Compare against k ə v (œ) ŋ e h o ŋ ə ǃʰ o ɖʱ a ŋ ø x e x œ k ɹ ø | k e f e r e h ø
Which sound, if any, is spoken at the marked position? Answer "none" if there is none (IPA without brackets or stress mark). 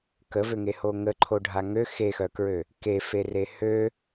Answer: ø